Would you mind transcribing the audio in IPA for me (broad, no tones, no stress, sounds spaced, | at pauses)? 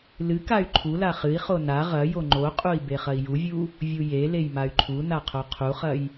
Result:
l ɨ k a y̯ ǃʰ u l a χ ɨ i̯ χ o n a ʁ ɐ j o ŋ͡ǃ o qʼ u i̯ b e χ ɐ i̯ j u vʲ u | vʲ u j e l e j m a y̯ ǃʰ u n a qʰ o qʰ u χ ɐ j